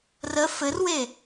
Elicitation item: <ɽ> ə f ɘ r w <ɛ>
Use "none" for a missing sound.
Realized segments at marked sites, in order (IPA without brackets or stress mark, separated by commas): r, e